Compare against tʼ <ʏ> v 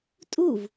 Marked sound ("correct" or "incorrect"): incorrect